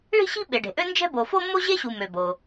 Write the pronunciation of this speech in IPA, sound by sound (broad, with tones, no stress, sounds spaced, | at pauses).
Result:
ɭ i̤˥ ɕ i̤˥ ɓ e˩ ɖ e̤˩ ʔ ø˥ n d͡ʒ ɛ̤˥ b o˩ f o˥ mː o˥ ʑ e˥ ɕ u˩ m ø˩ b o˩